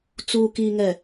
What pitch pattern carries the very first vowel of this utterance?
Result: low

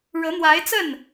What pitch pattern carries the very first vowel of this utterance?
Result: rising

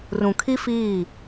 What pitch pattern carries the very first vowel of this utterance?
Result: low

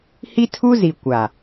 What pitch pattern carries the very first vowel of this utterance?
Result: high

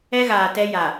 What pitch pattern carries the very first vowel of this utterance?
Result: high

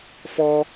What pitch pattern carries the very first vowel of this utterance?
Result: high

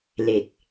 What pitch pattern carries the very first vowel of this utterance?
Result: low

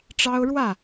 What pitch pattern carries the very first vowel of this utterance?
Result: high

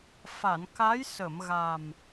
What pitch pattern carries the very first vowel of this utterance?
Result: low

